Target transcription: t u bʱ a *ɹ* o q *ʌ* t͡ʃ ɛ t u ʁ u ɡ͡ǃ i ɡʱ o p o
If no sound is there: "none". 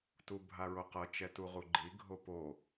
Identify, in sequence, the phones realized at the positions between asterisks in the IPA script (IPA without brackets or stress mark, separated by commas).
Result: ɹ, ʌ